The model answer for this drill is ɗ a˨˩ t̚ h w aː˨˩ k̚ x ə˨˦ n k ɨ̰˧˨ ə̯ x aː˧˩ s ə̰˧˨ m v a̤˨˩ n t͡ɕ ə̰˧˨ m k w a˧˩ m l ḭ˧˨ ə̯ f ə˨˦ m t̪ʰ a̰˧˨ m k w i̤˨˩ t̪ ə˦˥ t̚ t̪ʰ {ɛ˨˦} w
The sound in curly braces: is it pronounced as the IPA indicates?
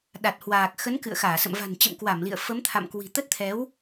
yes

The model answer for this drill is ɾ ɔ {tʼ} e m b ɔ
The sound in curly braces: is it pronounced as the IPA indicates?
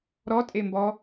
yes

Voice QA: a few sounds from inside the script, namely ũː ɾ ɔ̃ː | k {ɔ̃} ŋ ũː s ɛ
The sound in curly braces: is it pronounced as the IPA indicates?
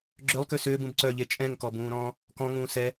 yes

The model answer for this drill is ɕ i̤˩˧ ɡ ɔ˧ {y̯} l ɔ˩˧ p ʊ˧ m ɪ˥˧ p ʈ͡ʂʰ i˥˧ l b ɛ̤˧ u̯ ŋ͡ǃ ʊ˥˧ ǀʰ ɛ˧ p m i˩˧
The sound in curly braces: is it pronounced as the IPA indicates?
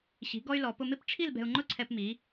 yes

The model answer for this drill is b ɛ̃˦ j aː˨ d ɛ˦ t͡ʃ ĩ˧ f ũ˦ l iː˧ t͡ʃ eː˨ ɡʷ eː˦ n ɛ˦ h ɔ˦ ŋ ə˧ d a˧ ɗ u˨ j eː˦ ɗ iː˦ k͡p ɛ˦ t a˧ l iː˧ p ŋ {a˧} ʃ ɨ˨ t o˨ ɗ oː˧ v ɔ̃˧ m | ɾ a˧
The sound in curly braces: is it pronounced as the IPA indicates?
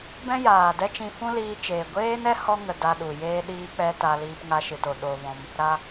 yes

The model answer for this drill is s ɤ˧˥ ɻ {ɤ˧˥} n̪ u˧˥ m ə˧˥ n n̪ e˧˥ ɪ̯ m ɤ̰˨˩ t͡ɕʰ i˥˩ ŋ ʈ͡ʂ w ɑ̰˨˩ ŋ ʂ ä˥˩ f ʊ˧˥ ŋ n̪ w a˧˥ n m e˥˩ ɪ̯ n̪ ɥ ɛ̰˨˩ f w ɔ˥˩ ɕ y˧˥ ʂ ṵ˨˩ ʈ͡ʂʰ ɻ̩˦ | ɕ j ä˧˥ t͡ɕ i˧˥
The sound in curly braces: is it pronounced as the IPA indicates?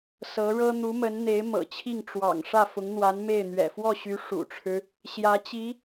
no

